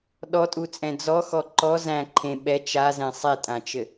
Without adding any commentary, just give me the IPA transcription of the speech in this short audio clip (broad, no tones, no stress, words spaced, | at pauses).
ɗɔtʼut͡sʼɛ̃ d͡zɔxɔ ǃɔ zæ̃ ǃʰẽ ɓɛ t͡ʃazɛ̃ sˤetʼãt͡ʃɘ